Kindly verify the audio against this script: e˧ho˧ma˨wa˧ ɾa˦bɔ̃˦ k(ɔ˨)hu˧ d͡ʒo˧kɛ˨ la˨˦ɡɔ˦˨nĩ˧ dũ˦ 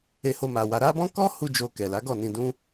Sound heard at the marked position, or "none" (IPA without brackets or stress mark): ɔ˦